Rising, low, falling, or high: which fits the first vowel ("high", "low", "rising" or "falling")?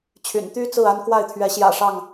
low